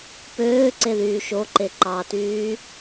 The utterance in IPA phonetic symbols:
p øː ǀ e ð yː ʃ o ǃ e ǃ ɑ t yː

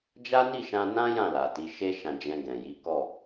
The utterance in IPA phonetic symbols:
d͡ʒ a˦ n i˦˨ ʃ ã˧ n ã˦ j ã˦˨ l a˨ t i˨˦ ʃ e˦ ʃ ã˧ d͡ʒ ɛ̃˧ ɡ ɛ̃˨ j i˨˦ k ɔ˦˨

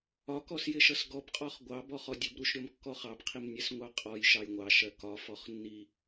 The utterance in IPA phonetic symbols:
ɒ k ɔ s j ɪ ʃ ʌ s ɡ ɔ b qʼ ɔ χ ɡʷ ɑ b ɔ χ ɔ dʲ ə b ɾ u ʃ ɾʲ ɔ m kː ɔ χ ɑ b qʰ i m nʲ ɛ s ŋʷ ɑ qʼ ɔ j ʃ ɑ j ŋʷ ɑ ʃ ɜ k ɒ f ɔ χ nː i

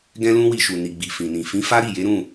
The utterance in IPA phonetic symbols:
ɡ ɛ̃˦ l ũ˦ w i˧ ʃ u˨ n i˨ ɡ͡b i˨ f ĩ˨ n ĩ˨ f ĩ˨˦ f a˦ ɾ i˦˨ j e˨˦ ɾ ũ˦˨

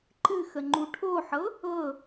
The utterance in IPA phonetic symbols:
ǃ ɨ x ə ŋ͡ǃ u ʈʰ o ħ ɤ | ɤ

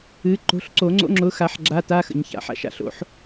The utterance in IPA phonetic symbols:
ɨ˨˦ ǃ o̤˨˦ ɬ ǀ o˨˩˦ ŋ͡ǀ o̰˧˥˧ ŋ͡ǁ ʊ˨˦ x a˨˩˦ ħ ɡ͡ǁ a˧˥˧ t a˧˥˧ x ə̰˨˩˦ ɲ ç a̰˨˩˦ ħ a̰˨˦ ʃ a̰˨˩˦ ɬ o̰˨˩˦ ħ

